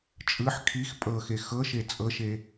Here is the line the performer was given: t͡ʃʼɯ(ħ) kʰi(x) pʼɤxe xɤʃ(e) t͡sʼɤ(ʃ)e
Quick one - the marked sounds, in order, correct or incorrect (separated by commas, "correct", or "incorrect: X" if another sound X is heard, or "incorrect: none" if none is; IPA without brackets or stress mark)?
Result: correct, correct, correct, correct